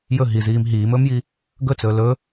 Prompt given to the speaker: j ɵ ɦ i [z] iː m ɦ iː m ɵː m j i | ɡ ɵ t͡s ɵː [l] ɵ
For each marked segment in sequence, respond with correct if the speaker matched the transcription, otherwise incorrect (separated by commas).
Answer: correct, correct